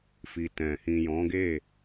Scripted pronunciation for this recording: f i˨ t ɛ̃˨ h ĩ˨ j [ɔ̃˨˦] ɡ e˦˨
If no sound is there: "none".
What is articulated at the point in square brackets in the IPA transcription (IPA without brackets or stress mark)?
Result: ɔ̃˨˦